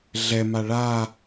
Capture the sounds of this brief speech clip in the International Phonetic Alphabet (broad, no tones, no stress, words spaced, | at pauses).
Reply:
ɮɛma ɭa